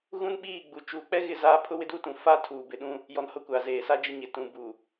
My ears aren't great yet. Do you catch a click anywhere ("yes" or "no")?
no